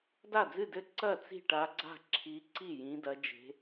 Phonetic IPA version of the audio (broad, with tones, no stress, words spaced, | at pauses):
da˥˩d͡zɨ˥˩dɘ˥˩ ǀɐ˥˩ t͡si̤˥˩ʈa˨˦ɡ͡ǀa̤˥˩ ǁʰi˨˦ǀi˥˩ jĩ˨˦dɐ˨˦ d͡ʒe̤˨˦